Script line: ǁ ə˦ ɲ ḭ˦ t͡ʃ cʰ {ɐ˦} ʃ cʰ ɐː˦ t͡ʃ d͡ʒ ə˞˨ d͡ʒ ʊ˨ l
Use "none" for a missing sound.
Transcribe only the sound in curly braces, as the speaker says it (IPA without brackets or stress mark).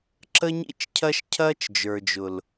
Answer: ɐ˦